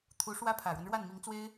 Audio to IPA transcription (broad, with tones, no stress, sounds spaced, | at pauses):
t̪ʰ u˧˥ ʂ w ä˥ pʰ ä˨˩ ɻ w ə˦ n ɻ w a˥˩ n m i˧˥ ŋ t͡s w e˥ ɪ̯